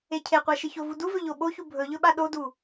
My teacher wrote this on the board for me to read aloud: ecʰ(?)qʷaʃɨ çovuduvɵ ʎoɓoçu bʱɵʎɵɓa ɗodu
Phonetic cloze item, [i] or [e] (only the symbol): e